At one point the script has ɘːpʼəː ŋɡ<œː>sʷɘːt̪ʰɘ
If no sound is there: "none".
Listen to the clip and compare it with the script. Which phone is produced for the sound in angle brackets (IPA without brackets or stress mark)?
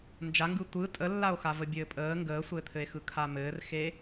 əː